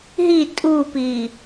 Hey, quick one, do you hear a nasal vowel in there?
no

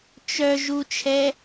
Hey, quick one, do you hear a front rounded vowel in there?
yes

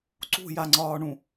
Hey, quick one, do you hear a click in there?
yes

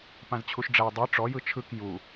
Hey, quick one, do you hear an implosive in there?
no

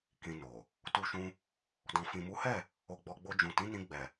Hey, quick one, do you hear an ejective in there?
no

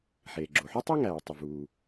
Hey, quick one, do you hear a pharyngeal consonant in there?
yes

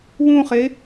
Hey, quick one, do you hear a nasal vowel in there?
yes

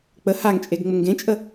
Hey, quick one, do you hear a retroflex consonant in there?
no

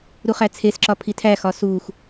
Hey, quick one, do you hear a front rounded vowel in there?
no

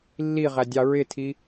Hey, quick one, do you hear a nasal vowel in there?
no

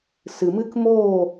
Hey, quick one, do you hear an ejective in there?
no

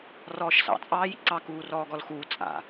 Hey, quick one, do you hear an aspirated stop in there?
no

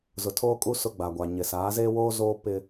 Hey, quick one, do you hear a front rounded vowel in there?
no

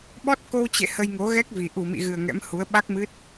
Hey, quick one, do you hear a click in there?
no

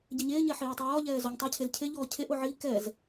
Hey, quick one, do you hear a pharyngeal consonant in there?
yes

